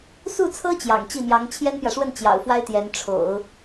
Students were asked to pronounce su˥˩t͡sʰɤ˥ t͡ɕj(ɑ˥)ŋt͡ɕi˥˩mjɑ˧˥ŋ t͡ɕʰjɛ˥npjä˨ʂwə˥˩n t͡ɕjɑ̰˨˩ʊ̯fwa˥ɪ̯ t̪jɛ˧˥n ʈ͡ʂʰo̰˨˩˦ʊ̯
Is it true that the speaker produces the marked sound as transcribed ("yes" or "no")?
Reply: no